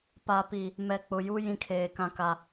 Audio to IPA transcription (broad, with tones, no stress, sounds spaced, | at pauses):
p a˨ p i˨ | m ɛ˨ k͡p ʊ˨ j u˦ j ĩ˦ kʰ eː˨ k ã˦ k a˦